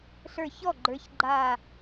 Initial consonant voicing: voiceless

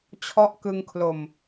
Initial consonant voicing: voiceless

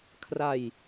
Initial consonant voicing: voiceless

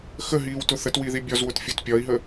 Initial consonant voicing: voiceless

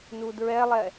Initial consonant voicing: voiced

